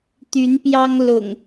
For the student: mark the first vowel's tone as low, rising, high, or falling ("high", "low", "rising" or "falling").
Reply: rising